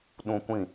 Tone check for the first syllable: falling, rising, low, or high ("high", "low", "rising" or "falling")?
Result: high